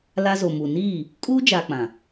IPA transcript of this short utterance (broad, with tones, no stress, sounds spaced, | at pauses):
l a˦ z o˨ m u˨ n iː˦˨ | kʼ uː˦ d͡ʒ a˨ k͡p ã˨